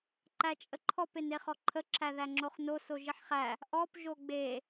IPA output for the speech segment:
ǃæt͡ʃʼəǃʰɔp eneχɔǃʰə ǁʰæðæŋ͡ǁoχno soʒiħχæ | ʔɔp ʒoɡ͡be

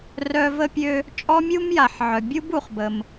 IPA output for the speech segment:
rœ˦ və˦pʲø˦ | t͡ʃʼɔ˥mʲu˥mja˨ħ ʕœ˨ bʲu˥bu˨χbə˨m

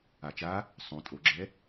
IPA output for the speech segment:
at͡ʃa | sˤõ tʼoɡ͡ǁɛ

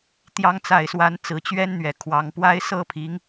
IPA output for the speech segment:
t̪jɑ˨˦ŋt͡sa˨˩ɪ̯swa˨˦n t͡sɹ̩˨˩t͡ɕɥɛ˦nn̪ɥɛ˨˩ kʰwɑ˨˦ŋ pwa˦ɪ̯ sɤ˥˨pʰi˨˦ŋ

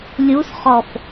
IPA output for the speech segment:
lʲusχɔf

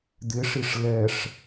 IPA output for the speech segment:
d̪ɪʂiʂ lɛʂ

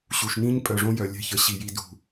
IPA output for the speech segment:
ɕu˨ʃnĩ˦ɲ pʼœ˨ʐõ˦jœ˨ lʲɛ̤˦çə˨˦ ɕi˨ji˨ dṳ˨

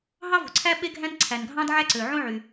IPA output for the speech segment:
ɦɑ˥vo̤˩ǀʰæ˥ ɓe˥ɡʱæ̃˥n ǀʰæ˩nɡʱɑ̃˥dʕæ˥ǀø˩ ʕõ˥ʕy˩

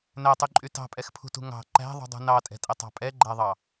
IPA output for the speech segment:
nætˤyǃʼy tɑ̤pʼɛxpʰṳtṳ ŋɑ̤ ǃæ̤ðˤṳdˤṳ nɑtʼɛ̤tʼɛtˤɑ̤ pʼɛɡ͡ǃæðˤɑ

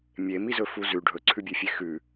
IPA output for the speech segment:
mʲemizɵfu zʉ ɖʱɵǀʰʉbʲefʲe xʉ

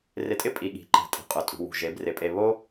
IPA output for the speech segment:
rɪ˧tʼɪ˦ pʼi˨ɠi̤˨ǃɛ̤˨ tʼi̤˨qʼʊ˨ tʼṳ˨ wṳ˨ʒe˨˦brɪ˨˦pʼe˧ βo˦

